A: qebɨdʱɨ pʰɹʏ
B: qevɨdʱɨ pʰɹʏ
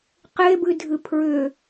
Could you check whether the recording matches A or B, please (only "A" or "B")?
A